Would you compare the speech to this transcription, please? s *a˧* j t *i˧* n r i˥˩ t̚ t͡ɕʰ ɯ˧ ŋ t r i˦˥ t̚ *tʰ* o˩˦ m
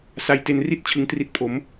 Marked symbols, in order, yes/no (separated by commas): yes, no, no